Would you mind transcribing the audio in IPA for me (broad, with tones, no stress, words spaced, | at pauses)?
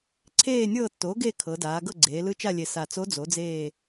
ǀʰeː˦˨nʲɤː˦˨tːoː˩˥ɡe˦˨ kʰɤ˩˧daː˩˧ ɡɤ˦˨ɡ͡ǀeː˩˧ lɯ˧˥t͡ʃa˦˨lʲe˨˩ sa˨˩t͡so˧˥ d͡zo˩˥d͡zeː˦˨